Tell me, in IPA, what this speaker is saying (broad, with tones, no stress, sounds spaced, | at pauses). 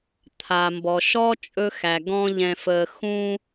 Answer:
t̪ʰ a˩ m b ɔ˩ ʃ ɔ˥ t͡ʃʼ ɵ˦ x æ˩ ɡ ɔ̃˦ ʎ ɛ̃˨ f ə˨ x ũ˦